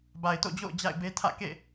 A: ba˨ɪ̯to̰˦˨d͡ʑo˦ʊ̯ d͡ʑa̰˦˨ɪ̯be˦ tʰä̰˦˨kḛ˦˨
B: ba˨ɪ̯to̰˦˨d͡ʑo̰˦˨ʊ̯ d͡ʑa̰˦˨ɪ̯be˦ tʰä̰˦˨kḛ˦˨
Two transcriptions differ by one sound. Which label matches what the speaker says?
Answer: B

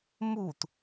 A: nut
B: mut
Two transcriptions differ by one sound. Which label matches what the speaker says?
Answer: B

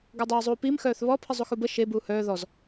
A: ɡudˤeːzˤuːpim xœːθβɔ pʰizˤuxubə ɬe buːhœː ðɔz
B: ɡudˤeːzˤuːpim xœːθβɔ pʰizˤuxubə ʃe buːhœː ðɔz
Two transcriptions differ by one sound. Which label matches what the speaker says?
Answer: B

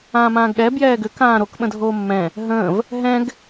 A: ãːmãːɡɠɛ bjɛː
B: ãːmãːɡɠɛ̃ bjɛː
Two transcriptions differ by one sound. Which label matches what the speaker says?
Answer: A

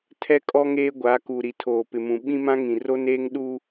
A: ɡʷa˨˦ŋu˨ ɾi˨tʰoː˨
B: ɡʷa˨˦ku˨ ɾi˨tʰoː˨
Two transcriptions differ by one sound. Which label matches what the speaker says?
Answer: B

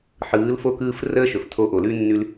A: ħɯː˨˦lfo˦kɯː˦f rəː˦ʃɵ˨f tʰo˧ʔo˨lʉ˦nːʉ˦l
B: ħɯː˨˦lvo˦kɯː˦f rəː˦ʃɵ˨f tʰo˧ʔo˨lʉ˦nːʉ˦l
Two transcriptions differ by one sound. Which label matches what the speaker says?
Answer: A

